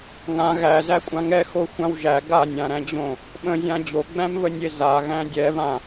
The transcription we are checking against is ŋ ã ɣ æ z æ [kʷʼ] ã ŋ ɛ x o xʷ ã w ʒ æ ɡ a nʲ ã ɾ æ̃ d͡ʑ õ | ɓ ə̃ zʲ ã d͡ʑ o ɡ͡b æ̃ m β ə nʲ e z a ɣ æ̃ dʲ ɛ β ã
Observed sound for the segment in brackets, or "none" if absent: kʷʼ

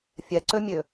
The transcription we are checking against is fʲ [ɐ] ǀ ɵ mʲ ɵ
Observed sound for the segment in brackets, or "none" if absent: ɐ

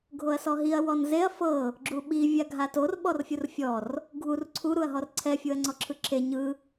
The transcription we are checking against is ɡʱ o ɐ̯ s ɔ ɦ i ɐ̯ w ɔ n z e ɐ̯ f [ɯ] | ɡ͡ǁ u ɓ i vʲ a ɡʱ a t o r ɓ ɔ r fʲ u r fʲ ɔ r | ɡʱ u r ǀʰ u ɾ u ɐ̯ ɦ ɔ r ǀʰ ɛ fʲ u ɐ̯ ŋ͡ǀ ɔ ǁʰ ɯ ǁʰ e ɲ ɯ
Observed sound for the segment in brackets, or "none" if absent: ɤ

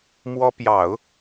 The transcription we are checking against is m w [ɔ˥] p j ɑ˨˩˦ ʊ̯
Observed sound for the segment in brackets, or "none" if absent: ɔ˥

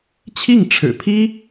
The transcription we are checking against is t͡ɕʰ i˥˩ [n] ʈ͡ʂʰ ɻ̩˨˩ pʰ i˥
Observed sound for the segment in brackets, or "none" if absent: ŋ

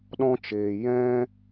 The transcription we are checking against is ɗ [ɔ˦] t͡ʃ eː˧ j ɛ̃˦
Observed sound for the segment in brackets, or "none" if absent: ɔ̃˦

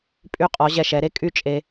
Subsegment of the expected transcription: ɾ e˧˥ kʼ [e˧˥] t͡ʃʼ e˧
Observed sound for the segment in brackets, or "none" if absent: y˧˥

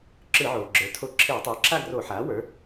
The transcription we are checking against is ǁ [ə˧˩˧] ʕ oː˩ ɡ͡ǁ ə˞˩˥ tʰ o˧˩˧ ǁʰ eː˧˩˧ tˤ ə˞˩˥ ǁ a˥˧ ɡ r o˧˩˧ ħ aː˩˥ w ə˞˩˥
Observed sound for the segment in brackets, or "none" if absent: ɯ˧˩˧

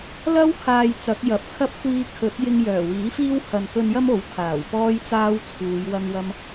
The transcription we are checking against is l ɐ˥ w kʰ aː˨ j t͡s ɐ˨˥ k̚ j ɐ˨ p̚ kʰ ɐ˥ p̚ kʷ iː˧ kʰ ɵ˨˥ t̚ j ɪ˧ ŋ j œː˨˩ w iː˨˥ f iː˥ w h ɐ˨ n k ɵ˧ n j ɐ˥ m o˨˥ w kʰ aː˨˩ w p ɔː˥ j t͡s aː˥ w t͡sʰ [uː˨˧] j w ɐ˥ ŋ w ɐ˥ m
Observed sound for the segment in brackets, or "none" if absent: uː˨˧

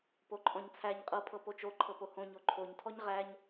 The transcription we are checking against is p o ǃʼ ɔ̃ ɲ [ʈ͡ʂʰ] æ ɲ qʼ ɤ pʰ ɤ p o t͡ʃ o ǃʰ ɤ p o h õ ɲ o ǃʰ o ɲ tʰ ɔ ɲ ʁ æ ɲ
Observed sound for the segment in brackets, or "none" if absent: t͡sʰ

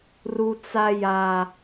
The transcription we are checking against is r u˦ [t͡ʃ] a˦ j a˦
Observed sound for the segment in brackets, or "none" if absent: t͡s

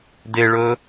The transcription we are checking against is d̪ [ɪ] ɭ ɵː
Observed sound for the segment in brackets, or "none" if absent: ɪ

